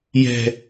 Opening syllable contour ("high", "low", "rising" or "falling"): low